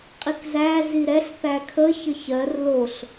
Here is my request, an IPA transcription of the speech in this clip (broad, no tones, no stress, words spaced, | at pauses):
qʼikzæ ziɾɛɬ θækʰə çəçɜr loɬ